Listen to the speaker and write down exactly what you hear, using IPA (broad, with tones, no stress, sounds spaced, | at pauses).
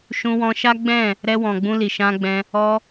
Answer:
ʃ ũ˧ w ɔ̃˧ ʃ a˦ ɡ͡b ɛ̃˦˨ | ɾ ɛ˧ w ɔ̃˨ ɡ͡b ũ˧ l i˨ ʃ ã˧ ɡ͡b ɛ̃˧ | ɔ˧